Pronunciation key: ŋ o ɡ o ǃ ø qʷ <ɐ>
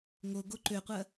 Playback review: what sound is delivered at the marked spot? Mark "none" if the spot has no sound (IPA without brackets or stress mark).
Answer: ɐ